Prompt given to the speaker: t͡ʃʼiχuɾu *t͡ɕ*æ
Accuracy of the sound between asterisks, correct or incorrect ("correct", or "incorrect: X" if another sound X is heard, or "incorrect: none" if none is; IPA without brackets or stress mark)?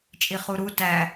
incorrect: t